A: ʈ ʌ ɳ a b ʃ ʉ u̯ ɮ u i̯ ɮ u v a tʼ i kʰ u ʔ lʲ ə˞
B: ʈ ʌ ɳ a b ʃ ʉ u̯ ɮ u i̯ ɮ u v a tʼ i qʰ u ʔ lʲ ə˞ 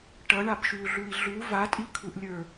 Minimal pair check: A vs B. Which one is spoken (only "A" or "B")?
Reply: A